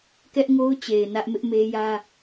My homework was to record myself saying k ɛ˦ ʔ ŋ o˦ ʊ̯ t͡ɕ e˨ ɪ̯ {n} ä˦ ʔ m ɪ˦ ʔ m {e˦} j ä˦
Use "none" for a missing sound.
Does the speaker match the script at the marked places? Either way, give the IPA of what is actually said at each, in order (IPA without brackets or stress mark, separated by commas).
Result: n, e˦